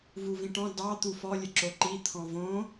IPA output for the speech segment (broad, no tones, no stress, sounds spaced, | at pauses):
v u v ĩ ʈ ɔ̃ d ɑ t̪ u f ɔ lʲ ɘ ǁ o ǃ i t̪ʰ ɔ̃ v õ